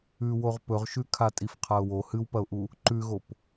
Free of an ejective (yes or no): no